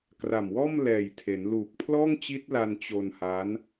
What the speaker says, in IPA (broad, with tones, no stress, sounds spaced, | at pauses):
k r a˨˩ m w ɔː˥˩ m l ɛː˨˩ j tʰ e˩˦ n l uː˨˩ k̚ pʰ l ɔː˥˩ ŋ t͡ɕ i˦˥ t̚ l a˧ n t͡ɕ o˧ n h a˦˥ n